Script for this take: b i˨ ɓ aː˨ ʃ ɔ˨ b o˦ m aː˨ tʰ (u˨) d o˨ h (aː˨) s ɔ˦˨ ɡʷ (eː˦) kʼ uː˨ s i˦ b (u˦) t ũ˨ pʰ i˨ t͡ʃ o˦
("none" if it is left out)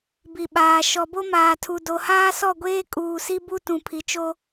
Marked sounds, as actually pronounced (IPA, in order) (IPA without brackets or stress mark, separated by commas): u˨, aː˦, eː˦, u˦